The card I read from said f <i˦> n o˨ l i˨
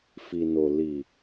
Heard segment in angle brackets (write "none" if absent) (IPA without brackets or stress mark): i˨